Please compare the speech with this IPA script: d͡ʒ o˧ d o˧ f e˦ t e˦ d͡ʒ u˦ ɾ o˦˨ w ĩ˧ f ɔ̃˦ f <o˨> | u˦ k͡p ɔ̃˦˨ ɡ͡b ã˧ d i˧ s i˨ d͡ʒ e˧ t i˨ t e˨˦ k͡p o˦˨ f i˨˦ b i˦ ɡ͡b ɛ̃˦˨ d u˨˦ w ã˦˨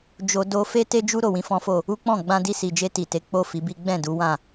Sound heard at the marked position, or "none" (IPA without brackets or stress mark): o˦˨